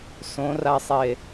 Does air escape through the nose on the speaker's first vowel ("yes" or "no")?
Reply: yes